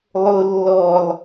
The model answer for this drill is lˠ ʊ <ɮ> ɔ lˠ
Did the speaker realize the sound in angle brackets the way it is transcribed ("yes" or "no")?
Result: no